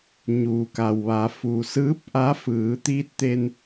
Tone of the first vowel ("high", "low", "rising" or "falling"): low